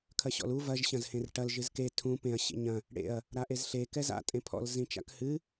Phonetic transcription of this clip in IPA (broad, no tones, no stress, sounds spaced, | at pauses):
kʰ ɐ ɕ ɔ̰ l u v ɐ ʒ ɕ ɐ̃ z h ẽ r ʈ ɐ l ʒ ɨ z k e tʰ ũ p ẽ ɐ̯ ɕ ḛ ɲ ɐ̃ | ɽ ḛ ɐ̯ | ɾ a ʔ e z ɬ e k ɛ z a̰ tʼ ẽ pʰ ɔ̰ l z ĩ t͡ʃ a̰ k h ɨ